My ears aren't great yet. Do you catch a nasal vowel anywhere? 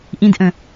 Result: yes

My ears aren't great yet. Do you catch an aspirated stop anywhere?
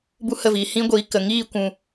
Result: no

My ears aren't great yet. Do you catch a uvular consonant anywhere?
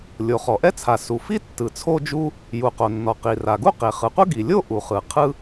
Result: yes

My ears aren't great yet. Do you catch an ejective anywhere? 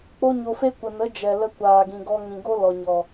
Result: no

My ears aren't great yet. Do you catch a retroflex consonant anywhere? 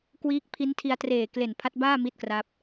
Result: no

